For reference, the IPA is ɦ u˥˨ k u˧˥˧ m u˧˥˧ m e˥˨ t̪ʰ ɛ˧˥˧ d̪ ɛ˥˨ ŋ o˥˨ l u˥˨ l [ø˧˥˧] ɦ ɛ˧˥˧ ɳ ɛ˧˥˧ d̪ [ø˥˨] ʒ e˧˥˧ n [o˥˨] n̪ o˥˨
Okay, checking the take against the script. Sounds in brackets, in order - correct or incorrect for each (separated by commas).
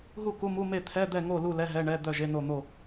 incorrect, incorrect, correct